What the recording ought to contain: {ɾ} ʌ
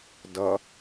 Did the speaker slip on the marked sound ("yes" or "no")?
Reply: yes